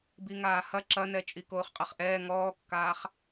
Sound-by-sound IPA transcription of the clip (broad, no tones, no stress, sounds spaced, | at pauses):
b i ŋ aː h ɐ ǁ ɐ n ɛ t͡ʃʼ i k oː χ qʼ ɐ χ ʔ ɛː ŋ ɔː kː aː χ